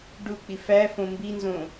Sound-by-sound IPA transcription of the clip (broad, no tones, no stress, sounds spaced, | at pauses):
ɖ u k͡p i f æ f õ m b i n z õ